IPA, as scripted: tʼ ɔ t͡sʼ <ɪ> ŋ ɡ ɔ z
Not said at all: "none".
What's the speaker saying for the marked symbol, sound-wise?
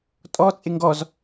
ɪ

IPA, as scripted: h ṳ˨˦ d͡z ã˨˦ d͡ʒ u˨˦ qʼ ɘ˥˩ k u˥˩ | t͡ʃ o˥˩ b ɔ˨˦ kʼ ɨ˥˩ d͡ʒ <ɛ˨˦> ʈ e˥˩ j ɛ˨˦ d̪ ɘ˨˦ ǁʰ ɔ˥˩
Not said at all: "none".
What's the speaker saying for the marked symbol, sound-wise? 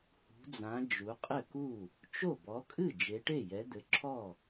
e˨˦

